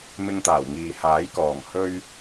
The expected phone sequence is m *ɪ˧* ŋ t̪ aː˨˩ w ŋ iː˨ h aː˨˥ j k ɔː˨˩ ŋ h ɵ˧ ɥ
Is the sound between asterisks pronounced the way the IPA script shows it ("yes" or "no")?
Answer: yes